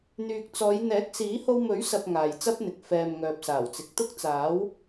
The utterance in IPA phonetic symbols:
n̪yː˨k̚t͡sɔː˨˧j n̪ɛː˨˥k̚siː˨˥ ho˧wmɵ˨˥ɥsɐ˨p̚ ŋaː˨jt͡sɐ˥p̚n̪ɪ˨k̚ fɛː˨mŋœː˨p̚ saː˨˩wt͡sɪ˨k̚t̪ʊ˥k̚ t͡saː˨˥w

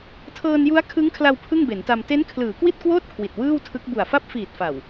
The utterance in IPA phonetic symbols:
tʰɤː˧nju˦˥a̯ kʰɯ˦˥ŋkʰla˧w pʰɯ˥˩ŋbe˩˦nta˧m te˦˥n kʰlɯː˩˦kwi˥˩t̚kwoː˥˩t̚ kʰwi˨˩t̚wɯː˥˩wtʰɯ˦˥k̚ bu˨˩a̯fa˥˩p̚ fiː˨˩t̚fa˨˩w

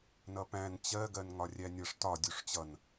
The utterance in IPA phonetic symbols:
nʌpæ̃n t͡ɕɜɡɜnŋɒ rʲænʲʌʂ tɒ dʲuʂt͡ɕʌn

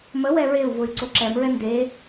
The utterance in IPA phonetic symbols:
mə wɛɹeu̯vʊy̯ ǀoǁɛmɹɛ nde

